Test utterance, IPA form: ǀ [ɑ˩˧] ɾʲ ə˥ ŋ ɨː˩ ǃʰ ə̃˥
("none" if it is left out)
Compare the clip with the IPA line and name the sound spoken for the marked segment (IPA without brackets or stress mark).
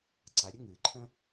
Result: a˩˧